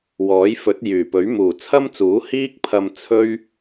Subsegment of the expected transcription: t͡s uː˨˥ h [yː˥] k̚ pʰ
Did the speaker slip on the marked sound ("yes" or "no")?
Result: yes